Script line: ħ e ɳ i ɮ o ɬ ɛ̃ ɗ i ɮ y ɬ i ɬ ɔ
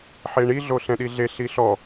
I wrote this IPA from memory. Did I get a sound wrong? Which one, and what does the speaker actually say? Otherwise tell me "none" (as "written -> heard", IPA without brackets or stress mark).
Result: y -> e